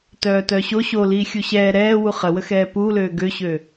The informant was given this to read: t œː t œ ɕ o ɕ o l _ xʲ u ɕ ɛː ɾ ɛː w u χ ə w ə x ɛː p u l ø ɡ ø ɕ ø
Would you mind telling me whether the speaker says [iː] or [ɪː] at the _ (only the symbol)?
iː